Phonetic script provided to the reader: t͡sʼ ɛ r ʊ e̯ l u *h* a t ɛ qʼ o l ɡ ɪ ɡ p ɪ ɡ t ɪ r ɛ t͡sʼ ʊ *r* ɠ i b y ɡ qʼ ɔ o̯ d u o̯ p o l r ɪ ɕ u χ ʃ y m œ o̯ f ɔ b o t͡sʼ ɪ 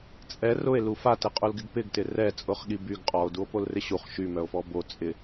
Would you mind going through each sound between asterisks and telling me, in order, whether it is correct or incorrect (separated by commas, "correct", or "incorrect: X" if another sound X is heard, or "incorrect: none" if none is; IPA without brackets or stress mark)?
incorrect: f, incorrect: χ